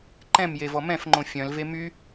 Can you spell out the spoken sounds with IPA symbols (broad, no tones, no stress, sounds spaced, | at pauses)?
ǃ ɛ̃ m j e v ɔ m ɛ̃ f ŋ͡ǃ õ fʲ œ̃ l v e m y